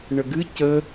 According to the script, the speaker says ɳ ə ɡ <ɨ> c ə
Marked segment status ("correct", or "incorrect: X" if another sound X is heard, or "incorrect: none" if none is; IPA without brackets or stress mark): correct